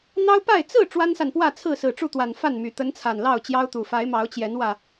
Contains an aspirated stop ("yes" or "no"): yes